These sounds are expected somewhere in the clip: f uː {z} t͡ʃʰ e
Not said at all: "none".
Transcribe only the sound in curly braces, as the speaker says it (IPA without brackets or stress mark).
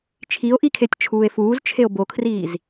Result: z